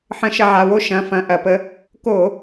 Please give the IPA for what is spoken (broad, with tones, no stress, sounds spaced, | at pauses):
ħ ə̃˧˩˧ ʃ ɐ˧ ʕ a˩˧˩ w o˧ ʃ ɐ̃˩˧˩ f ɐ̃˧˩˧ ʔ ɐ˧˩˧ p ə˧ | k o˧˩˧